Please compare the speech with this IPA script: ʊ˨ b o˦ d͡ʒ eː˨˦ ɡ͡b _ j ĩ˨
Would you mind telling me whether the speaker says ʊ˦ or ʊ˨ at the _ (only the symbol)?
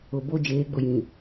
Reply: ʊ˨